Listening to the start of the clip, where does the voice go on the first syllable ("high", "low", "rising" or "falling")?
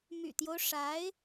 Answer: low